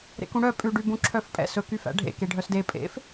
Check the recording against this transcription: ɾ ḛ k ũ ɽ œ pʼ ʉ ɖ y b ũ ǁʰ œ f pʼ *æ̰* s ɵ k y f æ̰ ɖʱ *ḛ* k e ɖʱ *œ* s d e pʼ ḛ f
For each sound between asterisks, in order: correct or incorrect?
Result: incorrect, correct, correct

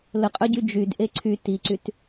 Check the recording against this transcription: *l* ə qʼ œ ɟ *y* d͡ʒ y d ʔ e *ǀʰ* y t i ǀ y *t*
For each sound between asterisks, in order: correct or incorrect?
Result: correct, correct, correct, correct

